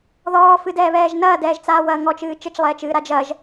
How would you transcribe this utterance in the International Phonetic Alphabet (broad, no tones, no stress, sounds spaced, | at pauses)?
ð ɔː f ɨ d ɛː β ɛː ʒ n ɐː d ɛː ʒ t͡s aː w ɐː ŋ ɔ t͡ʃ ɨː t͡ʃ ɘ t͡ʃ lˠ ɛː t͡ʃ ɨː ɾ a d͡ʒ ɐ ʒ